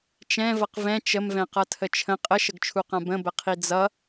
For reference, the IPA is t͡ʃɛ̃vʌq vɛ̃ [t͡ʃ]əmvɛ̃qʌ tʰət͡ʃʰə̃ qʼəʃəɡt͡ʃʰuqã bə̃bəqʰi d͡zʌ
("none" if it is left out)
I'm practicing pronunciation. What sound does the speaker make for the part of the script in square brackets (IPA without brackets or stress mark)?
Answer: t͡ʃ